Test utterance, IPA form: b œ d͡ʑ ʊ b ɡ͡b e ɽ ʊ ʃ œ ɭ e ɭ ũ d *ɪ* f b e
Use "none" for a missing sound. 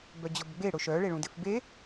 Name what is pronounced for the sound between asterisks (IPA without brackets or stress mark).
ɪ